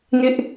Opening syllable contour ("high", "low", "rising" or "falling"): high